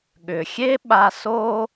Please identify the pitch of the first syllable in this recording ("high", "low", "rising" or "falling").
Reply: low